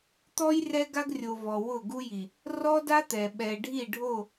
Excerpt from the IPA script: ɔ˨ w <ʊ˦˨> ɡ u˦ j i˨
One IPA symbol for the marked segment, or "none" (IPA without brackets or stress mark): ʊ˦˨